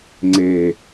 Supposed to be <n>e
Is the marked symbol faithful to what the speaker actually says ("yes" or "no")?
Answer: no